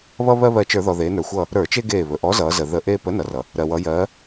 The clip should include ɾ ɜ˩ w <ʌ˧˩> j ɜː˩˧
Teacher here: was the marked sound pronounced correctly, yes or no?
no